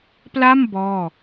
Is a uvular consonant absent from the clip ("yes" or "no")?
yes